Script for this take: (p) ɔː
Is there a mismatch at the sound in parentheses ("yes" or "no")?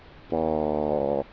no